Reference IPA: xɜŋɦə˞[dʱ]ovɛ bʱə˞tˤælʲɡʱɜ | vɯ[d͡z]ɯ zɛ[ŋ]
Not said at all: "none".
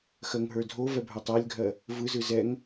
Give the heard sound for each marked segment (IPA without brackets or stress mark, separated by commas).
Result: dʱ, z, ŋ